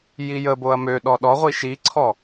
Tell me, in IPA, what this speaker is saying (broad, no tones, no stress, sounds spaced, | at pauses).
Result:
j i j ə b o ɐ̯ m ø ɗ ɔ ɗ ɔ ʁʷ i ʃ i ǀʰ ɔ